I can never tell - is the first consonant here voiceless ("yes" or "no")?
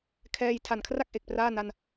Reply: yes